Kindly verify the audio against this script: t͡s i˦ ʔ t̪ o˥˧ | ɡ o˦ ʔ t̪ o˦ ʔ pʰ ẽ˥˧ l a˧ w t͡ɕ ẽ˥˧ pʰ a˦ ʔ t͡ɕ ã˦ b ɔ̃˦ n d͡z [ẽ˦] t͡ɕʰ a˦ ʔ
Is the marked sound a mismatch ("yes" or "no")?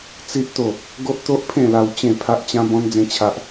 no